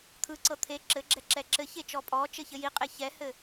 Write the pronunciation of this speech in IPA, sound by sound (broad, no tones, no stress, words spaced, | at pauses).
t̪ʰɯǀɤ t̪ʰe ǁɘɡ͡ǁɛ ǁɛǁɘçe t͡ʃɔpʼɔt͡ʃɘ çɘjiqʼe çɛhɘ